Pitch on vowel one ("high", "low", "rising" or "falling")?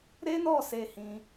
high